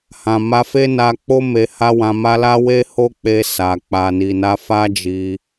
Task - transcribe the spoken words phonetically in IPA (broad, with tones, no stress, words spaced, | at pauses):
hã˨ma˧ fe˦na˧k͡po˦ me˧ha˦wã˧ma˦ la˦we˦ ho˦k͡pe˧ sa˨ k͡pa˨ni˨na˧ fa˦d͡ʒi˧